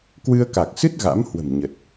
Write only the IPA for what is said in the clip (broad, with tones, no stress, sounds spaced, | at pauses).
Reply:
k w ɨ˧ ə̯ k a˨˩ k̚ s ɨ˦˥ t̚ ɣ a̰˧˥ m h w ə̤˨˩ m ɲ ə˨˩ t̚